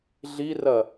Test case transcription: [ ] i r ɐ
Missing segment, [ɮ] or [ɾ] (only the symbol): ɮ